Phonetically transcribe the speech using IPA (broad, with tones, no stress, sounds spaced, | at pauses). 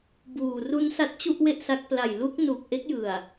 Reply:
b uː˨˩ r u˦˥ n s a˦˥ t̚ t͡ɕ u˥˩ ʔ w e˥˩ ʔ s a˦˥ k̚ p l a˨˩ j l u˦˥ k̚ n u˨˩ k̚ ʔ e˦˥ k̚ j ɯ˨˩ a̯